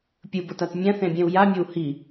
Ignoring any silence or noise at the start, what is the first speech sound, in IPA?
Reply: pʲ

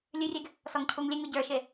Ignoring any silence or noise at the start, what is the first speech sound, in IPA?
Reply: lʲ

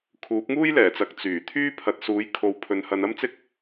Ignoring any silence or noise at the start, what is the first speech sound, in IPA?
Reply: kʰ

